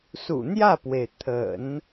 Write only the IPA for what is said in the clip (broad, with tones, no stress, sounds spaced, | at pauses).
s ṵ˨˩ n̪ j ä˥˩ p w e˩ ɪ̯ t̪ʰ ə̰˨˩˦ n